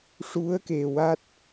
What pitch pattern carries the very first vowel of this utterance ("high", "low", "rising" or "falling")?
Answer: rising